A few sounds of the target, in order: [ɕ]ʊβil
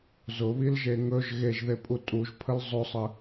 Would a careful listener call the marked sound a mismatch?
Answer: yes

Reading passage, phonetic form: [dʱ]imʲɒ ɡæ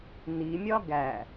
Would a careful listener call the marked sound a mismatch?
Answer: yes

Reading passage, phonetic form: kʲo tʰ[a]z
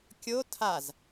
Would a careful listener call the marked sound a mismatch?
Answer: no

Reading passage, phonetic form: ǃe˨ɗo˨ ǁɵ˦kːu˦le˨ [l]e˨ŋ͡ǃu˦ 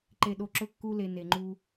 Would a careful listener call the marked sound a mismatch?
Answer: yes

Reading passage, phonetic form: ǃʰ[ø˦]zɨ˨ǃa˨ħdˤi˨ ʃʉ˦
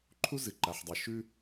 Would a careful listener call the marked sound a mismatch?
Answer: yes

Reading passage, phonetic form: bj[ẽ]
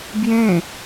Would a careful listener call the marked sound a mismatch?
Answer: no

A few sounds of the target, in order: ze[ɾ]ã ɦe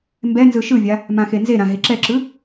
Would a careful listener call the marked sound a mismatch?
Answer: no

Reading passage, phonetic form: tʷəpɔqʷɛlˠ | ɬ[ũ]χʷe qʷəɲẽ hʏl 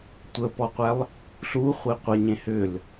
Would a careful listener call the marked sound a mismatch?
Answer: yes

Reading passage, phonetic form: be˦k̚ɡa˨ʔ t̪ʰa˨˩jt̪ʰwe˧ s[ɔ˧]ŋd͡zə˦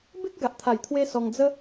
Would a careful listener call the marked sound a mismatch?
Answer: no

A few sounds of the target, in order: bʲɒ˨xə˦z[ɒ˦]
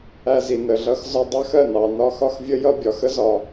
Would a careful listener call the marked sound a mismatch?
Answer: yes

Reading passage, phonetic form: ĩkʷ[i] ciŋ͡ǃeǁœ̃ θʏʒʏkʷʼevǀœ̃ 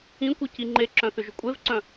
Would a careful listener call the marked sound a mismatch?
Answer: no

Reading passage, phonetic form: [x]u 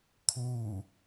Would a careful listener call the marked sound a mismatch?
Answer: yes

